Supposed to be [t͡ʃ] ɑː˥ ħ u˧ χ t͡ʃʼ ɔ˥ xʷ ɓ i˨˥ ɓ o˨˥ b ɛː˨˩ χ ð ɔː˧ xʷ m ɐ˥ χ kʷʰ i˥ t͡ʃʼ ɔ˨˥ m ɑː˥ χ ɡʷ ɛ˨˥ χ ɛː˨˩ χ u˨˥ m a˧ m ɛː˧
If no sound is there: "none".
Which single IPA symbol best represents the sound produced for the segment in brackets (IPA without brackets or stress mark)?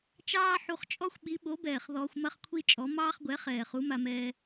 t͡ʃ